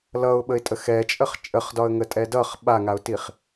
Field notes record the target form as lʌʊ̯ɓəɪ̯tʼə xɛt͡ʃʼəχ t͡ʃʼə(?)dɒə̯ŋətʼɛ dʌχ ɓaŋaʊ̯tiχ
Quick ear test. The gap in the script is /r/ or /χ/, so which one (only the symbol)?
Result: χ